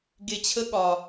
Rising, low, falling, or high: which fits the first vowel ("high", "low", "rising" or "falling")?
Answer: low